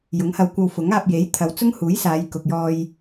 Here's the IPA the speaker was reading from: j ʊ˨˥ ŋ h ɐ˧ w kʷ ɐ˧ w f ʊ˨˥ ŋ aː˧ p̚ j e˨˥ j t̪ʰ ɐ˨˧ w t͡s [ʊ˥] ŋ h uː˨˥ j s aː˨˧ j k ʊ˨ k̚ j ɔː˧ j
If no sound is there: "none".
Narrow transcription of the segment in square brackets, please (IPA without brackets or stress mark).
ʊ˥